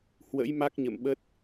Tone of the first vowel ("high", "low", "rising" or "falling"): rising